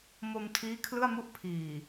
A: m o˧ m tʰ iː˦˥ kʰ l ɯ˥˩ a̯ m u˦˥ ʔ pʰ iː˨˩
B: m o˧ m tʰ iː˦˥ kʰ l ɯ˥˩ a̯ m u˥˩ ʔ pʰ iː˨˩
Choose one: B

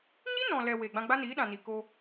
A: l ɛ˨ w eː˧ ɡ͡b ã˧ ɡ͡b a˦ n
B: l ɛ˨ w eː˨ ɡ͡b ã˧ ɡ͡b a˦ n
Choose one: B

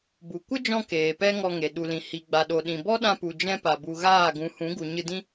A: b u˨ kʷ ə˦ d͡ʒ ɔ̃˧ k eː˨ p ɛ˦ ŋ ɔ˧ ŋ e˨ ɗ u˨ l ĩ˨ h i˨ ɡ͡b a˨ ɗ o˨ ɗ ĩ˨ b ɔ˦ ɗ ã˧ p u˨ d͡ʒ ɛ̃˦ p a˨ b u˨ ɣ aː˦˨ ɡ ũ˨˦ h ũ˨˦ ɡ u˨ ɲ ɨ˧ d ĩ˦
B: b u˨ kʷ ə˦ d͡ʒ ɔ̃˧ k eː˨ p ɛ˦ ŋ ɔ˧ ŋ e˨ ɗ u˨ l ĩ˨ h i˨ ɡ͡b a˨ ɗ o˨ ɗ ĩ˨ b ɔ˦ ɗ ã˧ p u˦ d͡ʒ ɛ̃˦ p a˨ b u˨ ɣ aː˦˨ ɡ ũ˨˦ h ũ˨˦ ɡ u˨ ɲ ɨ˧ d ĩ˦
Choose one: A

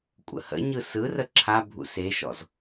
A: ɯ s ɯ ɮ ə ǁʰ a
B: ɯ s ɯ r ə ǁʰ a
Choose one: B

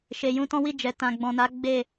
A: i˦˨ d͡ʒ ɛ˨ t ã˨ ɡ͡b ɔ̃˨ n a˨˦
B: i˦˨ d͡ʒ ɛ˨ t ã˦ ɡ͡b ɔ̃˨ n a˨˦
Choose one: A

